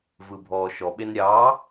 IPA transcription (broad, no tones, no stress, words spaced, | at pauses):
vɯbʱɔːʃɔɓen ɾʲɑ